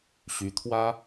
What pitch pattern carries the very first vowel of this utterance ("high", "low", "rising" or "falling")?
rising